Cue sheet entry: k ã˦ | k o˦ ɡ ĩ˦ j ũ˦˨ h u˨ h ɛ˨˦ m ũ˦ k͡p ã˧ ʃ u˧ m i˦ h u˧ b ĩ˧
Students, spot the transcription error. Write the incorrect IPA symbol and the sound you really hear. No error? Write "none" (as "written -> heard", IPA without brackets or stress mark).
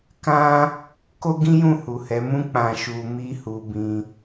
none